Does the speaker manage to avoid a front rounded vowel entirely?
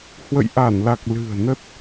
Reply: yes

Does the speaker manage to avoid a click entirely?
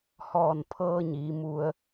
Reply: yes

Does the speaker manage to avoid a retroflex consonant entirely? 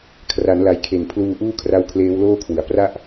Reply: yes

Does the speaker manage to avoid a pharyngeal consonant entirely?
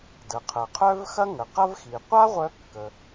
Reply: yes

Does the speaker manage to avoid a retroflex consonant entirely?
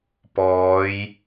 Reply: yes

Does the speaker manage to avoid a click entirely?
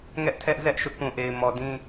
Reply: yes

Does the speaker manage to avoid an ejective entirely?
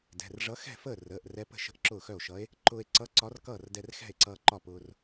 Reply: yes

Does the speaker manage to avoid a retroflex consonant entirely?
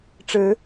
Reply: no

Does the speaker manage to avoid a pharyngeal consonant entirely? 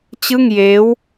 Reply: yes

